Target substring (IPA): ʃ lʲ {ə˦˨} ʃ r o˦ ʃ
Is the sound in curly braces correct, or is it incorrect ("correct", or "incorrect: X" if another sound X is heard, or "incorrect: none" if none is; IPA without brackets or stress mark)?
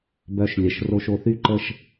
incorrect: ə˨